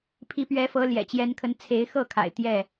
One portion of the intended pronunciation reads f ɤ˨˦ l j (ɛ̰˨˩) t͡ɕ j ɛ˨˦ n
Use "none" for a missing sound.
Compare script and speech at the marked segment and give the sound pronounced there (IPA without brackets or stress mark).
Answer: ɛ̰˨˩